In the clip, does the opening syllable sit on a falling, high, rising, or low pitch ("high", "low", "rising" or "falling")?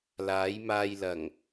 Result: rising